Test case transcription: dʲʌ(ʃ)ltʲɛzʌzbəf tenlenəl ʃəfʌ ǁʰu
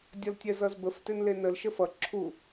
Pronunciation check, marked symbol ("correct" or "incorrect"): incorrect